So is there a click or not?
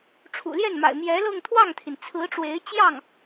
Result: no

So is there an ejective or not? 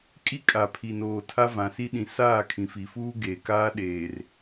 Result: yes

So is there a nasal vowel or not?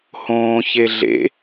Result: yes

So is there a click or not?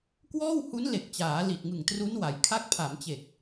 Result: no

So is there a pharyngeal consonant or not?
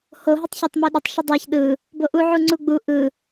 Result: yes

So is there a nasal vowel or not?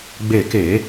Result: no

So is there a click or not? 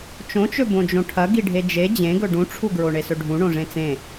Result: no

